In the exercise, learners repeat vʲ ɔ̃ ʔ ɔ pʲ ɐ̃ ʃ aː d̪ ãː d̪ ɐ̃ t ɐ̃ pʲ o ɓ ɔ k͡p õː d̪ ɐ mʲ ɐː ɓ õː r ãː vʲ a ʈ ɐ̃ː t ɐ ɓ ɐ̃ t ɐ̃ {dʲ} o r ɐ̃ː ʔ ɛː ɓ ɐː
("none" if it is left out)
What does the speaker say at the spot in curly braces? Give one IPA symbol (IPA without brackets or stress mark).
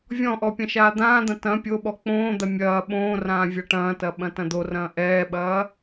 d̪